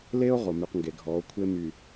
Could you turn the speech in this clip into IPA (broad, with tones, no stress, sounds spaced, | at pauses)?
l e˦ o̯ ʁ o˨ m y˨ q ŋ ɡ e˨ ɡʱ ɔ˨˦ o̯ kʷʰ e˦ m y˨